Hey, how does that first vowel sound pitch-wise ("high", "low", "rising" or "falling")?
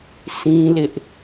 high